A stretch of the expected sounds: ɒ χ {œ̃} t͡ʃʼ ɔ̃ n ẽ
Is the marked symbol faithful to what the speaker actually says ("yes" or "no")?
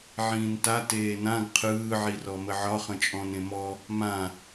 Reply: no